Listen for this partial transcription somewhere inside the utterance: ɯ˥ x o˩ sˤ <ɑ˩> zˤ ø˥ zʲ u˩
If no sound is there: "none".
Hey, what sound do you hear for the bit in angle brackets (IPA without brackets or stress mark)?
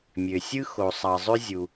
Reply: ɑ˩